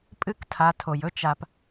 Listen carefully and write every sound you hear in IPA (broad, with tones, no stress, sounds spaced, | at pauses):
pʼ ɨ˦ k tʰ a˧ tʰ o˨ j ɵ˦ t͡ʃ a˧ p